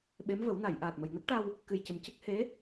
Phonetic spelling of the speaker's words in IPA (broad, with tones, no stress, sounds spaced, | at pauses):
ɓ e˧˥ m v ə˨˩˦ w n a˨˩˨ j ʔ aː˨˩ t̚ m ə˨˩ j n ə˦˥ k̚ ʈ a˧ w | k ɨ˨˩ j c ə˨˩ m c ə˦˥ k̚ h e˧˥